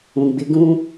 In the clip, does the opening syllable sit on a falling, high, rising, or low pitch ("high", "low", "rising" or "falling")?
low